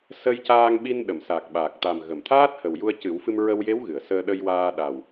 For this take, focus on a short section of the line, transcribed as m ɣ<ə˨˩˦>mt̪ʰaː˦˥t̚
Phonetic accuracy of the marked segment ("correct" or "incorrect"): incorrect